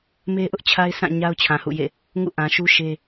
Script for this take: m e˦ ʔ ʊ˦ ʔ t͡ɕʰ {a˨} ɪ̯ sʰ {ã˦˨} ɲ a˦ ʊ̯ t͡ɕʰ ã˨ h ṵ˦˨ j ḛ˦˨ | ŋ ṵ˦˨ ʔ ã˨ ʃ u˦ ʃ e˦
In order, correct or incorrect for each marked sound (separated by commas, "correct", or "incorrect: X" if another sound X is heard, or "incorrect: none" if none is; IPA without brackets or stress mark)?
incorrect: a˦, correct